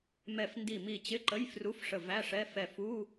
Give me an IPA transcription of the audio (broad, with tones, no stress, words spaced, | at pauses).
mɛ˧˩f ndi˧˩mi˧˩t͡ɕɪ˧˥˧ǃə˧˥˧j fru˧˥˧fʂə˧˩væ˧˥˧ʂɛ˧˥˧ fɛ˧˩fu˧˥˧